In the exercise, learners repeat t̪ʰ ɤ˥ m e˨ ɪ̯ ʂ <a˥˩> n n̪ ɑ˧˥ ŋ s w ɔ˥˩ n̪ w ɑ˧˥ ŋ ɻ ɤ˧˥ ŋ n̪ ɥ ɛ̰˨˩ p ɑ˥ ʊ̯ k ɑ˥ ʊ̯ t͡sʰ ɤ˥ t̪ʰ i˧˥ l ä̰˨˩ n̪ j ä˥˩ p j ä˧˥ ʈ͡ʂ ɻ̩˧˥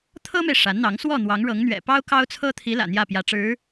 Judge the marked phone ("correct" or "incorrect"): incorrect